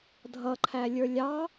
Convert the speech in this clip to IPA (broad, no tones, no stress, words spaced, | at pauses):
dʱʌǃʰælʲə˞ lʲɑ